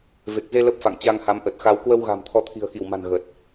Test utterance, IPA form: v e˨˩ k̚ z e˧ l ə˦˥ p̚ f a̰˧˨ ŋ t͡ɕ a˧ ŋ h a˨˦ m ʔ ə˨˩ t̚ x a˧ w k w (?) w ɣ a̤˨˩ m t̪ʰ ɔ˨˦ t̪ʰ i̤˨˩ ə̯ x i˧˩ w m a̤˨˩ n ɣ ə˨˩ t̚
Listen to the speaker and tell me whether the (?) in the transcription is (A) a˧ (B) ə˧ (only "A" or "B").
B